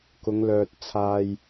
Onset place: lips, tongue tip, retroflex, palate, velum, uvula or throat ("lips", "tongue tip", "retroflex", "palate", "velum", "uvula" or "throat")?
velum